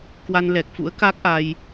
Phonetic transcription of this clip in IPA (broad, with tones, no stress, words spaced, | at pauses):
kwa˧nlɛ˨˩k̚fṵ˧˥ə̯ka˦˥k̚ ʔa˧j